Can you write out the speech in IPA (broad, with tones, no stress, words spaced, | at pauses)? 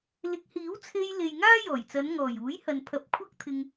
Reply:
lɪ˨˥k̚hiː˨˥wt͡sʰe˧jle˨j ŋaː˥jɔː˨˩jt͡sɐ˨˧n ŋɔː˨˩j uː˨˥jhɐ˨npʰɐ˨p̚ kʷʰɐ˥k̚t̪ʰɪ˧ŋ